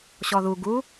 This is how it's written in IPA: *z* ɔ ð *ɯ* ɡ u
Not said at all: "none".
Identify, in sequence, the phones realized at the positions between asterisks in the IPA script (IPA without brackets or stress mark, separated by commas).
ɕ, u